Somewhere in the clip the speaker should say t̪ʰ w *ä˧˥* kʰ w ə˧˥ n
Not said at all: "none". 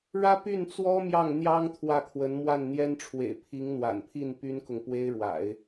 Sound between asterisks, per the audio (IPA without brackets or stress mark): ä˥˩